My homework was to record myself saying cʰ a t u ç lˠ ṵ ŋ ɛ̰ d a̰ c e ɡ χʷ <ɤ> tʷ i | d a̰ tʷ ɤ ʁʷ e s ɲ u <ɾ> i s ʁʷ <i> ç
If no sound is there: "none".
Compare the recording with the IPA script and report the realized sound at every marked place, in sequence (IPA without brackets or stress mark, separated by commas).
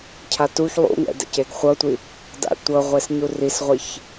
ɤ, r, i